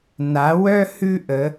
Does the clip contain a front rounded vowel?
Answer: yes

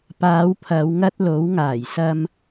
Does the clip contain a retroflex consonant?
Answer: no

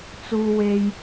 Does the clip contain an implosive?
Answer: no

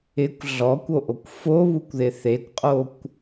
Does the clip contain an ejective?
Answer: yes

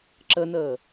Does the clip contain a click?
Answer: yes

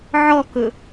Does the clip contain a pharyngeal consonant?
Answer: yes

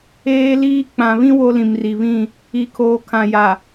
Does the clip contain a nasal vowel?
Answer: yes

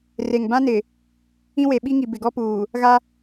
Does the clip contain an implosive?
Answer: yes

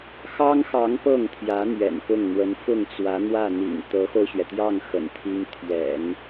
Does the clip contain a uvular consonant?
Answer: no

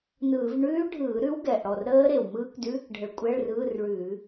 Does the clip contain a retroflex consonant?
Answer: yes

